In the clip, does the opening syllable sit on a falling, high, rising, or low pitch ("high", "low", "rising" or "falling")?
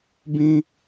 high